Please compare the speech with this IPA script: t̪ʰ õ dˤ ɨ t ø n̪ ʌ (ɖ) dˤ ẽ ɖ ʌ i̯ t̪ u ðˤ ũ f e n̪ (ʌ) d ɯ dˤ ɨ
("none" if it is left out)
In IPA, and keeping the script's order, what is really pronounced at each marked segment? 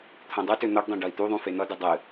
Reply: ɖ, ʌ

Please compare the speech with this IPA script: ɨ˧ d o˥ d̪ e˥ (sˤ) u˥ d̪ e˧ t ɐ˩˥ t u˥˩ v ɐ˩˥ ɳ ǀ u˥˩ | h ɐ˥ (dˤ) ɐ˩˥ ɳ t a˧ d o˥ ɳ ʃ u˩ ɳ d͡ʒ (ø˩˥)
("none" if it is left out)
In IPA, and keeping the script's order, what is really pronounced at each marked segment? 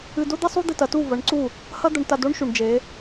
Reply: sˤ, d̪, e˩˥

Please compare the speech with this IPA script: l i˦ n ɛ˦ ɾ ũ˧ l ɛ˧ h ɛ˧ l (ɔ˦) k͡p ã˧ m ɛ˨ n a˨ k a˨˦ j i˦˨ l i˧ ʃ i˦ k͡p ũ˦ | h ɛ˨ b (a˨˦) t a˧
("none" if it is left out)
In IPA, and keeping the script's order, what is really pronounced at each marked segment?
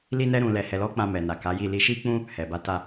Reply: ɔ˦, a˨˦

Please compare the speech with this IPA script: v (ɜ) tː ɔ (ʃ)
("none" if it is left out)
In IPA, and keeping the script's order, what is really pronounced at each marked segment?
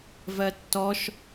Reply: ɜ, ʃ

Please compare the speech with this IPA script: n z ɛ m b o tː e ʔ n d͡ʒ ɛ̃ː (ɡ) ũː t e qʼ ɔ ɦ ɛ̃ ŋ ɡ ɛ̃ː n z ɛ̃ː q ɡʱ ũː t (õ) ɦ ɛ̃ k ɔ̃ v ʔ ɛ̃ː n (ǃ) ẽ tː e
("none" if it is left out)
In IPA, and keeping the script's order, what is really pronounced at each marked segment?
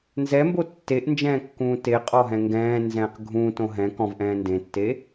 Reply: kː, õ, d

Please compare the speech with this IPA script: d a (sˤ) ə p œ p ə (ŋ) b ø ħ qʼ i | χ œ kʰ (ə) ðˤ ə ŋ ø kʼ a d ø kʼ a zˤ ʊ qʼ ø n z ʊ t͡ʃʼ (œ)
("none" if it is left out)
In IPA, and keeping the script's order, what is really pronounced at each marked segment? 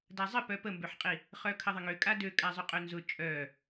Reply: zˤ, m, ə, œ

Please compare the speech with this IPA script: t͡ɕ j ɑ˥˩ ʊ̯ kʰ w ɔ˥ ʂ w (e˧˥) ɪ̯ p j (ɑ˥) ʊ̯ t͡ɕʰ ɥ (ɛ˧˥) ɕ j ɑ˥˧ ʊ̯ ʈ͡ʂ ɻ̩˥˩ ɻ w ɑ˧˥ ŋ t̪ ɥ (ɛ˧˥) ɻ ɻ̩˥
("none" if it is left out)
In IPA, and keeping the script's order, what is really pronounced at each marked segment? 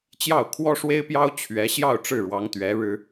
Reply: e˥, ɑ˥, ɛ˧˥, ɛ˧˥

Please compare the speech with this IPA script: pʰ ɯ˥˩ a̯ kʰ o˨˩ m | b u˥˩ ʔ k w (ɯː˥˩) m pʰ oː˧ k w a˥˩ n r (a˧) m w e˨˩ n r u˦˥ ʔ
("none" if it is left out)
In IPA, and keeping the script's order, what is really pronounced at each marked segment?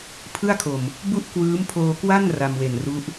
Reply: ɯː˦˥, a˧

